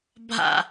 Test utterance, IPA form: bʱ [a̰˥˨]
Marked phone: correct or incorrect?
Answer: correct